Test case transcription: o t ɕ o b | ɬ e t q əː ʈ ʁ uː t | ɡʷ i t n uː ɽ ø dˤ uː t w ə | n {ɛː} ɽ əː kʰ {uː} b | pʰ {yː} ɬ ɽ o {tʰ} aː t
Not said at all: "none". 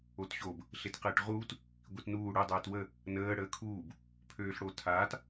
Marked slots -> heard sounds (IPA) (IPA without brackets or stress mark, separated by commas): əː, uː, øː, tʰ